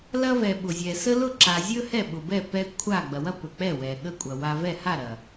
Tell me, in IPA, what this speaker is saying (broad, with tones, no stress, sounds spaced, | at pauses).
l ɐ˦ v ɛ˨ ɓ ʊ˨ zʲ ɛ˨ s ə˦ l ʊ˥˩ ǁ a˨ zʲ ɵ˦ h ɛ˥˩ ɓ ʊ˨ b ɛ˥˩ p ɛ˦ kʷʰ a˥˩ ɡ͡b ɐ˨ w ɐ˦ p ɵ˨ k͡p ɛ˥˩ w ɛ˨ ɠ ə˦ kʷʼ ɐ˨ w a˦ v ɛ˥˩ h a˥˩ ɾ ɐ˨